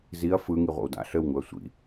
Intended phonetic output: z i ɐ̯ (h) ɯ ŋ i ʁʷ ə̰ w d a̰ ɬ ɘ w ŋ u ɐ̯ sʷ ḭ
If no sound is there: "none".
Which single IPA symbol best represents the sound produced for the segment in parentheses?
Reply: f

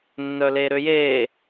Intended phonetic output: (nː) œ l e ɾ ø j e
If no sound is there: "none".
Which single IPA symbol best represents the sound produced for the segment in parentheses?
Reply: nː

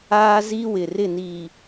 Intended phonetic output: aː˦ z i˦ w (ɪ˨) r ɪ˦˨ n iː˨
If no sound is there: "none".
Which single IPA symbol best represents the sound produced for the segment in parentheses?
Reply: ɪ˨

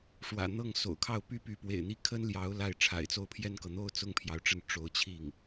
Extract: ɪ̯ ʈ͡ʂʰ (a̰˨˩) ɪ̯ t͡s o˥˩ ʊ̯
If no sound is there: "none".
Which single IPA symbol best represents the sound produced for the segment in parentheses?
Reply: a̰˨˩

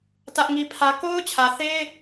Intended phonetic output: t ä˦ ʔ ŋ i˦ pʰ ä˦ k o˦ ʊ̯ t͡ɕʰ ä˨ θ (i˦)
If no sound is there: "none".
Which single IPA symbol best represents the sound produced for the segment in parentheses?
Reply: e˦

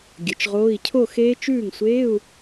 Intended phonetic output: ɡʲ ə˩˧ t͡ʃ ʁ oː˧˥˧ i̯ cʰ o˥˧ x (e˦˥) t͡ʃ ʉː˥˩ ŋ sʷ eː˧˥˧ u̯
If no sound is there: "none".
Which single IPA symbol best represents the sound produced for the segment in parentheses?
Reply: eː˦˥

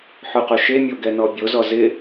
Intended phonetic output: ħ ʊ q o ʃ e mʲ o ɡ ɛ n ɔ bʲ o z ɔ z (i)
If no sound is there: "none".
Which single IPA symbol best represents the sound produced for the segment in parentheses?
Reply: ɪ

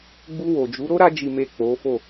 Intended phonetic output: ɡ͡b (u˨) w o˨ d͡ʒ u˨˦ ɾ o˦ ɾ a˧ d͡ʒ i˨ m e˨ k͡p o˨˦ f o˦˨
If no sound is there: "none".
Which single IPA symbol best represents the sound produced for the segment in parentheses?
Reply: u˧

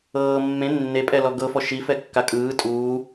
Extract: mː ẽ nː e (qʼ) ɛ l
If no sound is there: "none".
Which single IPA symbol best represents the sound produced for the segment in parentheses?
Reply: pʼ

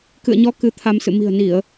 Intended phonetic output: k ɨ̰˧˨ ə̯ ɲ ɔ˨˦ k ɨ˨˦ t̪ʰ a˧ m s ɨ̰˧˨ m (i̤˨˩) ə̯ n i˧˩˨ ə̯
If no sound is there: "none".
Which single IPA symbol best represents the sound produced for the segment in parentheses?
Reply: i̤˨˩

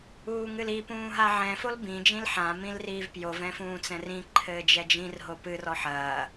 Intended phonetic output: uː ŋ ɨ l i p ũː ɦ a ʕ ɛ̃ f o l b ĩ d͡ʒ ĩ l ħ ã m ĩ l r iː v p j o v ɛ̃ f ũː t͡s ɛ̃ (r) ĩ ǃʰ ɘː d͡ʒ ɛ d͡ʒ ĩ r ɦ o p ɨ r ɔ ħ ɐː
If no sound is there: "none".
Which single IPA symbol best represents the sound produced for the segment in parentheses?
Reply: r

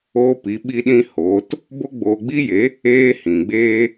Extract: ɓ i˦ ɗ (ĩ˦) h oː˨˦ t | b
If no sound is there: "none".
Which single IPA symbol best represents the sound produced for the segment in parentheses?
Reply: ĩ˦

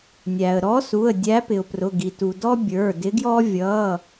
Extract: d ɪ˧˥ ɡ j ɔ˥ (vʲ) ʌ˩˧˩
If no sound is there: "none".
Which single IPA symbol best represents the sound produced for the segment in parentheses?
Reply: vʲ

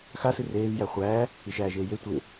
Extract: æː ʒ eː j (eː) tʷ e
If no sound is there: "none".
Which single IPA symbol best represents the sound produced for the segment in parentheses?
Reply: e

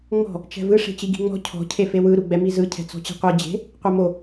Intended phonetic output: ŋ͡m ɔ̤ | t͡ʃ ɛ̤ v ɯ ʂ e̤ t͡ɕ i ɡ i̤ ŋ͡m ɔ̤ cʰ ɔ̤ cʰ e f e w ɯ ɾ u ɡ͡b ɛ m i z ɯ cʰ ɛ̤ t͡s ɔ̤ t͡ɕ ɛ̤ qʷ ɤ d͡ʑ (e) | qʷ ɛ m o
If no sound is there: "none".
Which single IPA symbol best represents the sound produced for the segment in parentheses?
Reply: e̤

